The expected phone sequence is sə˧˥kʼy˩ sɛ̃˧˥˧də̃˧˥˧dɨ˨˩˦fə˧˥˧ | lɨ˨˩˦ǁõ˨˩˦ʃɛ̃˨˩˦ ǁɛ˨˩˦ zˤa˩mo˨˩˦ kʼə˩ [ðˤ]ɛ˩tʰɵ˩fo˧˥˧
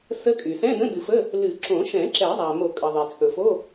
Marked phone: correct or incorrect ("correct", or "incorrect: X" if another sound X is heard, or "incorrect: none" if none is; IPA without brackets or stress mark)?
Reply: correct